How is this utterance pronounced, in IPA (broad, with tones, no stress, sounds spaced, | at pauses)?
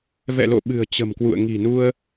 v ɛ̰˧˨ l o̰˧˨ ɓ ɨ̤˨˩ ə̯ t͡ɕ ə̤˨˩ m k w ṵ˧˨ ə̯ ŋ i̤˨˩ n u˧ ə̯